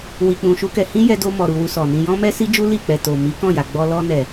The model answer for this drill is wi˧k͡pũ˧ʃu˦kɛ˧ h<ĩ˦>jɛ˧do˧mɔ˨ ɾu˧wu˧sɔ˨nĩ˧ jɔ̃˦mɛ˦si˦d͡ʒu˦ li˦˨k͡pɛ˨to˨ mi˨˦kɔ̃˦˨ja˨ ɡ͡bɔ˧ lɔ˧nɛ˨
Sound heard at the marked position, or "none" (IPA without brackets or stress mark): ĩ˦